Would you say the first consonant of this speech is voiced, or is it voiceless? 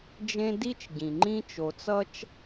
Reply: voiced